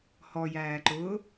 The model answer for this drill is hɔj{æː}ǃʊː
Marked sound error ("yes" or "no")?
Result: no